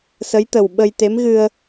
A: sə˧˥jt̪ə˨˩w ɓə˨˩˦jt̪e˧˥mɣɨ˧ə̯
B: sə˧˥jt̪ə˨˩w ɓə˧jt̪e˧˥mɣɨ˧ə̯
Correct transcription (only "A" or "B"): B